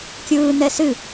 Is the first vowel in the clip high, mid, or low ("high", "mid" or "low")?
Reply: high